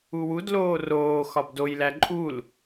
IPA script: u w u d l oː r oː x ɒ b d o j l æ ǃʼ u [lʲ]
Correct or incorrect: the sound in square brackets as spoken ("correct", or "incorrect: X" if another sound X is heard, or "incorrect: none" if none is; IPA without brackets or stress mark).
incorrect: l